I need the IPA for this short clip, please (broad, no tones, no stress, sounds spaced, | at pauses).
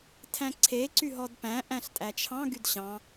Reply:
tʰ æ̃ ǀʰ e ǀ y ɦ ɔ d p æ̃ ʔ æ̃ ɬ tʼ æ t͡ʃʰ ɑ̃ ɡ y d ɕ ɑ̃